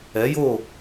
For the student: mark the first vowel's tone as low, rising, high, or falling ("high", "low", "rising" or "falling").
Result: rising